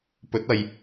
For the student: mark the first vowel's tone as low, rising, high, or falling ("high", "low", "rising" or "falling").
rising